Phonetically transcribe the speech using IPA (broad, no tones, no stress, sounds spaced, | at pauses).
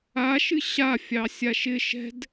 a ʃ ɨ ɕ a fʲ ɑ sʲ a ʃ ɪ ʃ ɛ̤ d